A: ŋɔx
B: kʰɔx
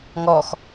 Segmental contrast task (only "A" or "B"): A